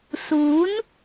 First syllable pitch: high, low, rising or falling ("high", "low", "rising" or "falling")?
rising